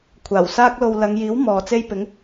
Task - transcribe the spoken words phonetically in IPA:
kʷʰaː˨˩wsaː˥k̚lo˧w lɐ˨˧ŋjiː˨˥w mɔː˨t͡se˥j pɪ˨˥ŋ

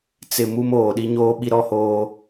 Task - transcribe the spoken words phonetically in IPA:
t͡sɪ˨ mu˦moː˨ ɗi˦ɲoː˦ɓi˦ ɾɔ˦hoː˦

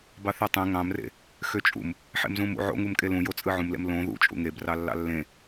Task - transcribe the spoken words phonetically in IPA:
bɑθetˤẽ ŋɑ̃mrḛ | xøt͡ʃʼṵm | ħḛmzũmṵ ʕo̰ŋumkʼe lũjot͡sʼɯ ʕũmlḛm lõ ðṵt͡ʃʼṵ ŋebrɑ lːɑ̰lːẽ

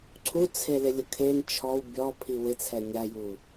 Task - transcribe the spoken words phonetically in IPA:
ǀʰut͡sʰelɪ lʲʊkʰen t͡ʃʰɔw bʲɔpʰi wɪt͡sʰɛ nʲaju

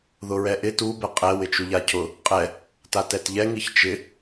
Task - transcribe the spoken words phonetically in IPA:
ðʊɹɛʔɪ tu bɛqʼɛ wɪt͡ʃuʎacʰʊ | qʼɛ | tatɛtʎɛ ŋiçt͡ʃɪ

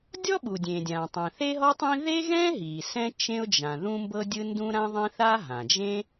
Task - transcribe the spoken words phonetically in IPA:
dʲɔ˥ɓu˩ dʲẽ˩dʲã˩tˤɛ̃˩ θe˥ɦɔ˥tˤĩ˥ ðe˥ɣɛ̃˥ɦi˩ sɛ̃˥ t͡ʃẽ˥ʊ̯d͡ʒã˩ ðũ˥mbɤ˥dʲɯ˥ ndũ˥ɾã˥ðˤẽ˥ θa˥ɦã˩d͡ʒẽ˥

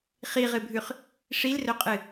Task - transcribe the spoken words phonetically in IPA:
χiʁɨbʱʉχ | ʂilrɵqʼɨ

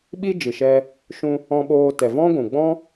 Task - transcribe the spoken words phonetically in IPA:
ɓi˦d͡ʒɨ˨ʃɛ˧ | ʃũ˧ | ɔ̃˧ɓoː˧tɛ˨ vɔ̃˦ɡʷũ˨ ɡ͡bɔ̃˦

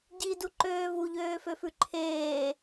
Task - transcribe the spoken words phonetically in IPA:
ɟiduǃøː vuʎøːføfʉ ǃʰeː

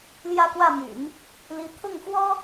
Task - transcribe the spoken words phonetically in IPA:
ljä˥˧kwä˥˩my̰˨˩˦n | li˧˥ t̪ʰʊ˥˩ŋfwɔ˥

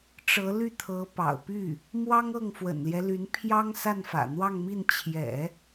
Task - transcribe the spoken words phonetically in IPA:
ʈ͡ʂɤ˧˥ly˥˩ t̪ʰɤ˧˥pɑ̰˨˩ʊ̯py˥˩ | mwɑ˥ŋɤ˥˩ŋfwə̰˨˩nljɛ˦ ly˧˥n pʰjɑ˥ŋ sa˥˩nfä̰˨˩n̪wɑ˥˧ŋmi˥˩n t͡ɕʰjɛ̰˨˩˦

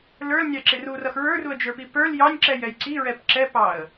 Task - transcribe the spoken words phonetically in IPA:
lə˞lnʲɑǁɪr urʌx ɹə˞ruə̯d͡ʒə˞pi pə˞l jɑnʲǁɛjɛj ǀiɹɛp ǁɛpɑə̯

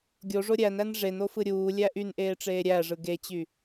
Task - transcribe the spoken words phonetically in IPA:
ɡʲoʐo ɾʲænæn ʐenofɯ ɾʲuːlʲæ ʔynʔeːʈ͡ʂeː ɾʲæʐɯ ɡet͡ɕy

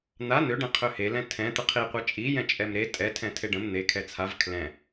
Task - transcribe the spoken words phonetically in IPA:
n̪a n̪øɖɛ̃ qʰøhelɛ̃ tʰɛ̃ t̪əqʰiqʷɛ t͡ʃʼijɛ̃ t͡ʃʼɛmɾe tʼɛ tʰɛ̃tʰeɖə̃m n̪ekʰɛ t͡sʰav kʰlɛ̃

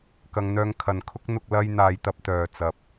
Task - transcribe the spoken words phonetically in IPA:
kɐ˧ŋ n̪œː˧ŋkʰɐ˨nkʰʊ˥k̚n̪ʊ˧k̚ lɐ˧jn̪aː˨jt̪ɐ˧p̚ t̪œː˨ t͡sɐ˧p̚

